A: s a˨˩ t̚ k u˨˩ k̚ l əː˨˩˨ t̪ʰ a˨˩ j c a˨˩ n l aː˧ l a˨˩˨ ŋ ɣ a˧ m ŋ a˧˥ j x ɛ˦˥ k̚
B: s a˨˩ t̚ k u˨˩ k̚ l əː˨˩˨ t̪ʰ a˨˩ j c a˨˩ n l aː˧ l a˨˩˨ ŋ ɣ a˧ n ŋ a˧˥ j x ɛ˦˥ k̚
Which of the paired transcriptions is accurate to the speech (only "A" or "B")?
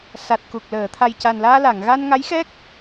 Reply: B